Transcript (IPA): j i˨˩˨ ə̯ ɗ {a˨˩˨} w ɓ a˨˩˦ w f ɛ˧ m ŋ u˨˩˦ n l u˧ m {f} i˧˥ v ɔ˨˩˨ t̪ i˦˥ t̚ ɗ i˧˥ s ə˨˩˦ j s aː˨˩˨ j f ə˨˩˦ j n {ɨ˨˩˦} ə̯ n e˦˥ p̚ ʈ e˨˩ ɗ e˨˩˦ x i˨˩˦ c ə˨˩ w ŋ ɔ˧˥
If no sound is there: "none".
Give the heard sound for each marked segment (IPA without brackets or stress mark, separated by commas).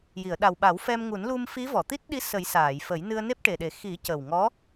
a˨˩, f, ɨ˧